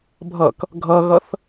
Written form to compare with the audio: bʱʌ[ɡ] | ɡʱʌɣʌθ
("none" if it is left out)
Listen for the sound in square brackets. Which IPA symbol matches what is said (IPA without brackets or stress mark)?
k